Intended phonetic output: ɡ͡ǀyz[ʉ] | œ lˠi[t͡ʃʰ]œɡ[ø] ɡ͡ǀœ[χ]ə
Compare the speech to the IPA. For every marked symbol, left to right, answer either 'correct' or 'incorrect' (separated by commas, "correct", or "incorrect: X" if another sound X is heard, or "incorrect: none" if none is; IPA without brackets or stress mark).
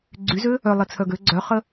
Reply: incorrect: ø, incorrect: t͡sʰ, correct, correct